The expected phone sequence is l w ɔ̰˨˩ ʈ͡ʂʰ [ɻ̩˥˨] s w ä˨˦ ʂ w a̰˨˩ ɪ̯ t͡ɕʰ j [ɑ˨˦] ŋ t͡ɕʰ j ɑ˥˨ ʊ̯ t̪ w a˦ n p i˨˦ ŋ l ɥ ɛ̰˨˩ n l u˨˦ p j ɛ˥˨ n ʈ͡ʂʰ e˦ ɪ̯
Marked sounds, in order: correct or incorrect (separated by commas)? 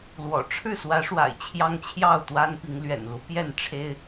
correct, incorrect